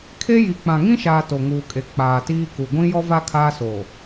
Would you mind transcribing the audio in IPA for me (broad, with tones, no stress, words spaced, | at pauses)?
kʰe˦ji˨ k͡pã˨ŋĩ˦ʃaː˨ to˨ŋuː˨kʼe˨ k͡paː˨tiː˦ku˨ ɡʷĩ˦jɔ˦va˦ kʰaː˦soː˨